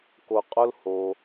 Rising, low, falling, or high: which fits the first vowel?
low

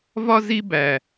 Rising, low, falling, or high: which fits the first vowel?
high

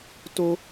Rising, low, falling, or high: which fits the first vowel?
high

